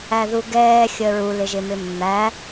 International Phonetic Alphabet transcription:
æðuɡɛːxʲəːɹ ulɪʒɪmɪ mːæ

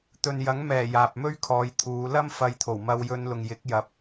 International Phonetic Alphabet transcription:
t̪ɵ˨njɐ˨˥ŋmɛː˨˩ jaː˨p̚mɵ˥ɥkʰɔː˨˧jt̪ʰuː˨˧ lɐ˥m fɐ˧jt̪ʰo˨˩wmɐ˧w jɵ˧nlʊ˨ŋjɪ˨˥k̚ jɐ˨p̚

